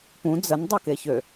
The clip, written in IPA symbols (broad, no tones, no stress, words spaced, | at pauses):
pũ d͡zən dˤokeçø